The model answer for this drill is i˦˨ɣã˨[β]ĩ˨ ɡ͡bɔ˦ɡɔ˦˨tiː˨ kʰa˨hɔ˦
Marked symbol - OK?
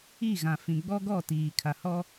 no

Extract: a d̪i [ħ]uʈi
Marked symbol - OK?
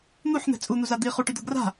no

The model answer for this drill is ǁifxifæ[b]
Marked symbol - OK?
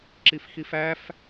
no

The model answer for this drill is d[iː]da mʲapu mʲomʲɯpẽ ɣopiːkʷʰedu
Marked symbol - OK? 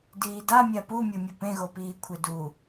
yes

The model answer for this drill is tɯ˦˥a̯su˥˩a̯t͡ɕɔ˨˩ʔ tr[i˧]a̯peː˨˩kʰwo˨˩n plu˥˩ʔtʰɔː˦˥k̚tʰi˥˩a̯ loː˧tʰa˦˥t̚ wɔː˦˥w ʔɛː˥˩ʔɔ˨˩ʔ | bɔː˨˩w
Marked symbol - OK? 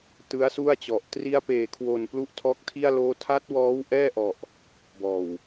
yes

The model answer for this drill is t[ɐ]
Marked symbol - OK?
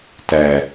no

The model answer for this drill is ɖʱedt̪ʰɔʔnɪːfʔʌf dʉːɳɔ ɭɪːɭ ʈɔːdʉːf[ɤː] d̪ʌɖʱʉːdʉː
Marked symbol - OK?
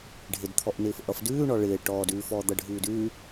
no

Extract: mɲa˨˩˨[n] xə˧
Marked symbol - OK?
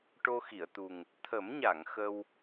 no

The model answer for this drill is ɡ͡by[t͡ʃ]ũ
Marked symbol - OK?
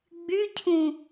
no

